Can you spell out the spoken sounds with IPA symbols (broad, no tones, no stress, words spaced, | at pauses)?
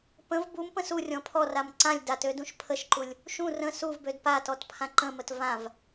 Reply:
pə̃v bumpə̃ surʲɔ̃ pʰɔram ǀãlʲ datødũʃ pʰəʃǃulʲ | ʃũ rə̃ suvbød patɔtpʰã ǃə̃mət vãv